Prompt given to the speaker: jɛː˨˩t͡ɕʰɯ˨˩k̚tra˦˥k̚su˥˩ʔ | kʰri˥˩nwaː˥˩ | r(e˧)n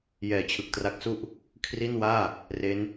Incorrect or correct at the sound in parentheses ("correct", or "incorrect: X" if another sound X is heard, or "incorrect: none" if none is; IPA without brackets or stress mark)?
incorrect: e˦˥